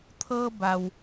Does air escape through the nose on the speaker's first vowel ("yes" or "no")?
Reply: no